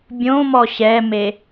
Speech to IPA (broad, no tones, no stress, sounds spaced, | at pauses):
bʲ õ m ɔ ɕ ɛ m e